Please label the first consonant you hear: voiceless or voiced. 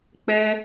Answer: voiceless